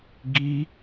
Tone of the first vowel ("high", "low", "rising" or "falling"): high